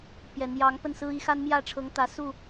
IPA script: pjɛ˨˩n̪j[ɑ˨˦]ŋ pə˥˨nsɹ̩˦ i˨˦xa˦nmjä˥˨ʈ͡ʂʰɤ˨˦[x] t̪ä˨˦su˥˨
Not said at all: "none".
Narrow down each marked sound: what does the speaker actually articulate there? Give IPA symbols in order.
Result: ɑ˨˦, ŋ

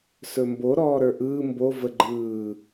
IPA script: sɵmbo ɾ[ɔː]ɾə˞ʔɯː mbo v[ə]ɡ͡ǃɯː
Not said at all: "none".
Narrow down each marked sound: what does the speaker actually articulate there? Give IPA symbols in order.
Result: ɔː, ə

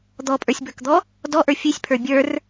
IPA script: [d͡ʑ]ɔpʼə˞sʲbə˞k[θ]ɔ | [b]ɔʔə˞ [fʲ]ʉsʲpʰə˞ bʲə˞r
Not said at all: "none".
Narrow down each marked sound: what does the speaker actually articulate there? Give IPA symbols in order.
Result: d̪, d̪, d, fʲ

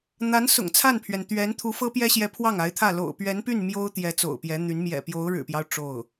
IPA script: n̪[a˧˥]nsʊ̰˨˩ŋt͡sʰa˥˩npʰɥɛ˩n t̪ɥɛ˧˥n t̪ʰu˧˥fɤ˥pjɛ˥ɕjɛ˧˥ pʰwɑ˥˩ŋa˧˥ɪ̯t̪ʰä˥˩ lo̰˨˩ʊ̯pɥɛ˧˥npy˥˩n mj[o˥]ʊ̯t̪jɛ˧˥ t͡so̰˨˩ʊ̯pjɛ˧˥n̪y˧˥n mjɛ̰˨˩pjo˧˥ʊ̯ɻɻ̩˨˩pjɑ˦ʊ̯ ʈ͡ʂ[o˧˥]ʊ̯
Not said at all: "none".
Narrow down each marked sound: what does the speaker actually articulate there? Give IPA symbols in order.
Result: a˧˥, o˥, o˥˩

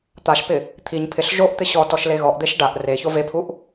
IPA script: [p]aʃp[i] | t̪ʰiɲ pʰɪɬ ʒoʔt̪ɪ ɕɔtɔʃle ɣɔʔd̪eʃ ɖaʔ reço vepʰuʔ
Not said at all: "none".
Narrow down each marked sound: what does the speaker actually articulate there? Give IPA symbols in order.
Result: t̪, ɪ

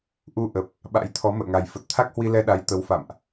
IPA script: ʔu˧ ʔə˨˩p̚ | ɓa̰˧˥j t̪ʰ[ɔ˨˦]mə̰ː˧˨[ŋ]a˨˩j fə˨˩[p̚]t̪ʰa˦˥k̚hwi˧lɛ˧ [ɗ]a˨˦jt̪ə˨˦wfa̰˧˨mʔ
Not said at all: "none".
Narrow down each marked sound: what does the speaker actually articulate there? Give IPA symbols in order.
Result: ɔ˨˦, ŋ, t̚, ɗ

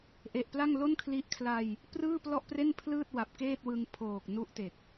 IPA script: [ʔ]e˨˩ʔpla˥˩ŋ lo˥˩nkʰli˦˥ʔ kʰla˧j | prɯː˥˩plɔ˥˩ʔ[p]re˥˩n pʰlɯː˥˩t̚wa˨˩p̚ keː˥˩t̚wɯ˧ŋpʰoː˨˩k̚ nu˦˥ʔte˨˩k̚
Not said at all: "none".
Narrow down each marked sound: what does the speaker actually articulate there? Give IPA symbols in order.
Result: ʔ, p

